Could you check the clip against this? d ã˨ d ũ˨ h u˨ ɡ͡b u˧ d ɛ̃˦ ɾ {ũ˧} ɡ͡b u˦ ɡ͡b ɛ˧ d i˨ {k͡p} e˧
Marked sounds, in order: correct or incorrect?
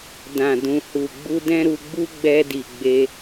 incorrect, incorrect

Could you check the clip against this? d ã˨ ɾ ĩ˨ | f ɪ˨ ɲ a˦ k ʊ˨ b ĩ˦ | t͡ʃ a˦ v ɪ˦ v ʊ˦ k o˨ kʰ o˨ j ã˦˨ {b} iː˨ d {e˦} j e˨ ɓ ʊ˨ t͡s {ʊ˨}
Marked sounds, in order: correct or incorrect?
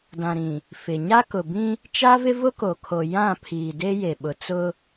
incorrect, correct, incorrect

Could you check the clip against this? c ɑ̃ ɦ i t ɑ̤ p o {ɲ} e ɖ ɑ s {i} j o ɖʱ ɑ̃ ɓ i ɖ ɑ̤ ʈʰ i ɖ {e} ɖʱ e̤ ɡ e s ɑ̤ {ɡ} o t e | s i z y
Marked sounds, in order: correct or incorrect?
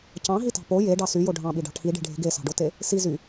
incorrect, incorrect, incorrect, incorrect

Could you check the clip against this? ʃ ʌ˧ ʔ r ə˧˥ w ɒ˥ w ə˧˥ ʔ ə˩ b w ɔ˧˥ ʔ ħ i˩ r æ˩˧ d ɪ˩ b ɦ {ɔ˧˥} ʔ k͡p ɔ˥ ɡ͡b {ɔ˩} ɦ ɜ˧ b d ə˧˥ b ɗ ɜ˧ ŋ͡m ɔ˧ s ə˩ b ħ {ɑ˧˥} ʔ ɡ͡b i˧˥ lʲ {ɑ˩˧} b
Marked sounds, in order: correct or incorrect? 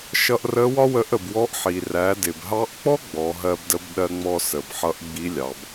incorrect, incorrect, incorrect, correct

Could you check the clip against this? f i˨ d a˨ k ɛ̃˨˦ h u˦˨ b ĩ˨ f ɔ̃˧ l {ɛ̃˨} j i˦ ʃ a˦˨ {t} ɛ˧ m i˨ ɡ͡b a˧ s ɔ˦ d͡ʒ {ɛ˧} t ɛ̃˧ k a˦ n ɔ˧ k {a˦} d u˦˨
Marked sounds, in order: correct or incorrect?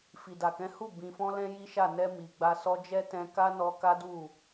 incorrect, incorrect, incorrect, correct

